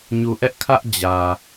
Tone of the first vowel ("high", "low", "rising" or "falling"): low